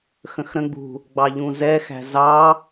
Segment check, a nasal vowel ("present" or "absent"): present